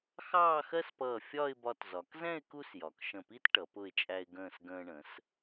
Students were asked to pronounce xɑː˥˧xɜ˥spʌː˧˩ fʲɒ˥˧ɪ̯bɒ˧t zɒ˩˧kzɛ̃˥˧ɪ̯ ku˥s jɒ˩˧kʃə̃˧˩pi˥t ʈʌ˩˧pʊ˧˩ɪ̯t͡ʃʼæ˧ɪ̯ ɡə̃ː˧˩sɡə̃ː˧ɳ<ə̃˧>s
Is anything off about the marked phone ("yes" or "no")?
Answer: yes